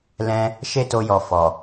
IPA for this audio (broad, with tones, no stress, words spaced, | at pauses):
lɛ̃˦ | ʃe˦to˧jɔ˨ fɔ˨